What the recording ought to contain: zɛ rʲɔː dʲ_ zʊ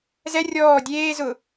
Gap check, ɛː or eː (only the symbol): eː